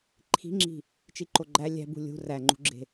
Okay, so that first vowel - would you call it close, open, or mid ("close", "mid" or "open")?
close